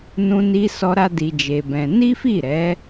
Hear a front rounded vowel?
no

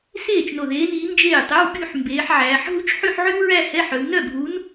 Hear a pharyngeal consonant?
yes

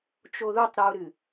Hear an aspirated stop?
no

